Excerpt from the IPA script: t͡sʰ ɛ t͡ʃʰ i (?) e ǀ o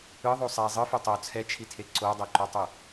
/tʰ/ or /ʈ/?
tʰ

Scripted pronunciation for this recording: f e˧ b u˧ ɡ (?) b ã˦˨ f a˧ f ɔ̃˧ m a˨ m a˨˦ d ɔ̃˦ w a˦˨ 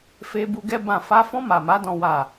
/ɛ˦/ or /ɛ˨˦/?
ɛ˦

